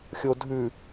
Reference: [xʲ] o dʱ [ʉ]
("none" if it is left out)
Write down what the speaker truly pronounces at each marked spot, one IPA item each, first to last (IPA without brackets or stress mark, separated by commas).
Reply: xʲ, ʉ